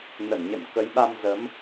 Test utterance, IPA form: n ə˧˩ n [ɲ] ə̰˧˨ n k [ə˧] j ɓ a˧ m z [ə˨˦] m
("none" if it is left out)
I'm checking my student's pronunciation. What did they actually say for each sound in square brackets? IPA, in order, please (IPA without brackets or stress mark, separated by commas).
ɲ, ə˨˦, ə˨˦